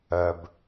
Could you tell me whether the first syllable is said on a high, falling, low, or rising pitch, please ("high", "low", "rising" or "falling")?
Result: low